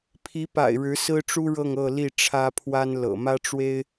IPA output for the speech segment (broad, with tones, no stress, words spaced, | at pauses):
pʰi˧˥pa̰˨˩ɪ̯ ɻɻ̩˧˥sɹ̩˥ʈ͡ʂu˥ɻɤ˥˧ŋ ɤ˥˧li˥˩ʈ͡ʂʰä˥pʰwa˥n lɤ̰˨˩mä˥ʈ͡ʂwe˥ɪ̯